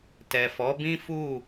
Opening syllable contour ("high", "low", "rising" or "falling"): low